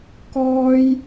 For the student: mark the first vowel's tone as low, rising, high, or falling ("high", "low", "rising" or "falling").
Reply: high